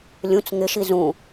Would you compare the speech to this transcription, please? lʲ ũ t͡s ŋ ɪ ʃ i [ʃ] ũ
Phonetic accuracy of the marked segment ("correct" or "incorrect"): incorrect